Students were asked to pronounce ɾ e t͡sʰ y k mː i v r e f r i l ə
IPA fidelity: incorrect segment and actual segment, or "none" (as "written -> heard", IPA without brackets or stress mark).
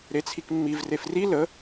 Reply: y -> i